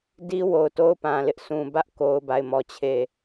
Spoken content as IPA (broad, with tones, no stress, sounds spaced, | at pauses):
d i˦ w o˨ ʊ̯ t o˦ ʊ̯ p ã˨ l ɪ˦ ʔ sʰ ũ˨ b ä˦ ʔ k o˦ ʊ̯ b a˦˨ ɪ̯ m ɔ˦˨ t͡ɕʰ e˦˨